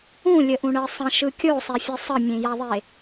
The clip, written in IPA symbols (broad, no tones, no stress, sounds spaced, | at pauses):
ũ lʲ ə ʔ ũ ɳ ɜ sˤ ə̃ ʃ ɯ kʲ o sˤ e fʲ ɯ sˤ ə mʲ ẽ j a ðˤ e